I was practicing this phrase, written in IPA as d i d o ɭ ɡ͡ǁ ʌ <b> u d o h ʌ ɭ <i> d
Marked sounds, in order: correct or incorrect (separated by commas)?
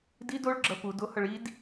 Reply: incorrect, correct